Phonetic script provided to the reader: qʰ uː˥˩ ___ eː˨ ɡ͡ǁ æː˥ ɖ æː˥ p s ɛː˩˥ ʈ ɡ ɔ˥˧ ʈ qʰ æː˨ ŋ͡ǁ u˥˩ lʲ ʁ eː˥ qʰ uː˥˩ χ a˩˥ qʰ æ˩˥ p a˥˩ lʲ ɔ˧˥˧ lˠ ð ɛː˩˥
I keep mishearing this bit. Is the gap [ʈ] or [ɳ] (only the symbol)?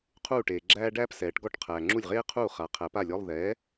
ʈ